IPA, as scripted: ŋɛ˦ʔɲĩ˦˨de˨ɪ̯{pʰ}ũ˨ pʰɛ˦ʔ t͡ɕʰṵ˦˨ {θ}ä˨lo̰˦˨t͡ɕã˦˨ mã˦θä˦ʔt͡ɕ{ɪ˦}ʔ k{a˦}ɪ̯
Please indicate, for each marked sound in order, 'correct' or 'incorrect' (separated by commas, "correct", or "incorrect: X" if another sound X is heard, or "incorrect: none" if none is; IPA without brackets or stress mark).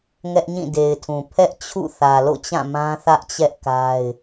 incorrect: tʰ, correct, incorrect: ɛ˦, correct